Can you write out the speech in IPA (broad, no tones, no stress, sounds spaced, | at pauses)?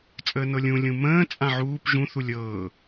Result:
t͡sʼ əː n ɤ lʲ ũ lʲ ũ m ə̃ː t͡sʼ ã ʕ uː p ʒ ũ θ u lʲ ɤː